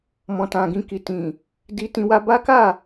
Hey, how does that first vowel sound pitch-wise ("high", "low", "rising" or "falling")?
low